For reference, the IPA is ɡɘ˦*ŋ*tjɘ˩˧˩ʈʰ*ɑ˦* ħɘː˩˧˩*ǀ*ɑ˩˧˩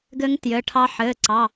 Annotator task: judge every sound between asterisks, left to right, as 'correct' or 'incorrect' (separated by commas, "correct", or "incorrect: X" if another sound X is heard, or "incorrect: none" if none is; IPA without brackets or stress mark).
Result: correct, correct, correct